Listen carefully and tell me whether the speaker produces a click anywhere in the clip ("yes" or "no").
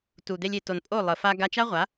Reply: no